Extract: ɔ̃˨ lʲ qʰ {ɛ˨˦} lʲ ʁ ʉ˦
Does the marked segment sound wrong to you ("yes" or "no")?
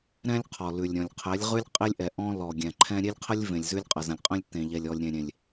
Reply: no